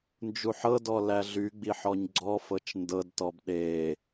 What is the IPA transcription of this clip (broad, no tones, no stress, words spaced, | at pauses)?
nd͡ʒuħɤdɔ læɮyɡ͡bi ħɔɲɡ͡ǀɔfɤt͡ʃ ndɤdtɔb ɗe